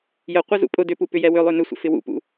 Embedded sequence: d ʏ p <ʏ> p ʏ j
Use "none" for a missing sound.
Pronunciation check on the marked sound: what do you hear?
u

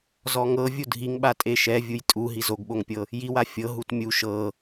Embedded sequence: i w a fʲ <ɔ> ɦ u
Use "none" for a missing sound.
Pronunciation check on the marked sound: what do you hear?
ɤ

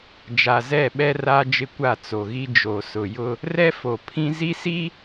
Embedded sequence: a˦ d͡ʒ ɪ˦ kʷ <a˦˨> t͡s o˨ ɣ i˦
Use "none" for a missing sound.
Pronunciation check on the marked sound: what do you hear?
a˦˨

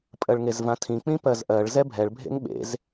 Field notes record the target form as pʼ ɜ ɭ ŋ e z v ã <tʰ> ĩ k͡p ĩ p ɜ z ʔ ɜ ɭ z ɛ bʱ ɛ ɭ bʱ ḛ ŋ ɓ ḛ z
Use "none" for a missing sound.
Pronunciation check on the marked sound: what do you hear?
tʰ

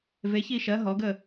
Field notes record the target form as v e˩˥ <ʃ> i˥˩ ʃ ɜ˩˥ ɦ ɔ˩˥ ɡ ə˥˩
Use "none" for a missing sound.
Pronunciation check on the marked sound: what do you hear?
ç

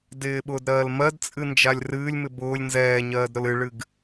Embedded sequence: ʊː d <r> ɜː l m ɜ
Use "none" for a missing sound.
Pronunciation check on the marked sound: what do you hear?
ɾ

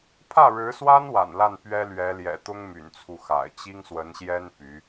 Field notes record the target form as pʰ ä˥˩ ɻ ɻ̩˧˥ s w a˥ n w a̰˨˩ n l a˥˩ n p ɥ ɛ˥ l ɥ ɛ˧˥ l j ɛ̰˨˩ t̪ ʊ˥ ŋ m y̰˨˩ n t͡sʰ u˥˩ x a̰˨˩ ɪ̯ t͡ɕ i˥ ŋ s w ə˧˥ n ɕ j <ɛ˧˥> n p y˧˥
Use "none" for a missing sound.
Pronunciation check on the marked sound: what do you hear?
ɛ˥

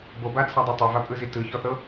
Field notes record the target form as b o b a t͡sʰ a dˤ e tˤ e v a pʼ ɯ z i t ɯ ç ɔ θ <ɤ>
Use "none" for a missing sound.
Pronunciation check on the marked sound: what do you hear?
ɤ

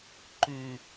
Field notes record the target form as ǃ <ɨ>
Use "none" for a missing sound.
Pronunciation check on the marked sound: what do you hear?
ʉ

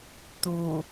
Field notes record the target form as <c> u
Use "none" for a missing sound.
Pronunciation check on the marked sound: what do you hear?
t̪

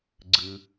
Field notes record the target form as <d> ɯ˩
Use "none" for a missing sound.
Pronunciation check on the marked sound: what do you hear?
ɡ͡ǀ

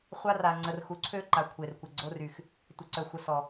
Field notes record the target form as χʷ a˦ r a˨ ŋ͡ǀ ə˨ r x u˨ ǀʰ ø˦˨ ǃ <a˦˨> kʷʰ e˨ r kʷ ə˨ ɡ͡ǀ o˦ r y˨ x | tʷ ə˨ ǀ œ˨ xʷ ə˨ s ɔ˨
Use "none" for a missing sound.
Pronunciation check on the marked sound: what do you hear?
a˨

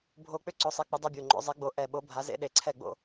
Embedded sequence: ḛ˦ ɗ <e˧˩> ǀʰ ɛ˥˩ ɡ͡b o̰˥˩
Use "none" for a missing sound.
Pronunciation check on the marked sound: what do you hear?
e˧˩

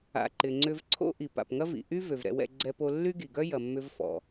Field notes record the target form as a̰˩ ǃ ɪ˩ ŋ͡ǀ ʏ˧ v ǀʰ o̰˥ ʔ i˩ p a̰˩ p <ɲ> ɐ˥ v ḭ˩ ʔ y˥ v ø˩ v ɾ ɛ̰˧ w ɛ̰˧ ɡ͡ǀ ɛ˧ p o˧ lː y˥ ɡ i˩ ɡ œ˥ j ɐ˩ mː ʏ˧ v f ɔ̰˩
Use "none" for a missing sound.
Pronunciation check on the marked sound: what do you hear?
ŋ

